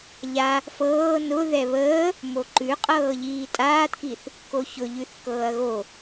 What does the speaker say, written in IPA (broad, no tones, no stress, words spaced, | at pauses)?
ʎa | fɤː nʊ ðɛβəː | moǃʉ qʼɤːʎiːtʼaːtkiθ | koçʊ ʎʉθkɤːɐ̯ɣo